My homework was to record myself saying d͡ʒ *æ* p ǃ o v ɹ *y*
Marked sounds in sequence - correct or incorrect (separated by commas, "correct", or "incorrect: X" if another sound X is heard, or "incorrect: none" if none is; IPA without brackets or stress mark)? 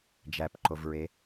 correct, incorrect: e